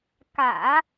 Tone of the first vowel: low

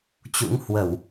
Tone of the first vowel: rising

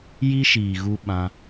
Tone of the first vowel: high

